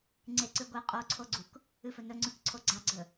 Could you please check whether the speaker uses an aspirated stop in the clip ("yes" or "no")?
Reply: yes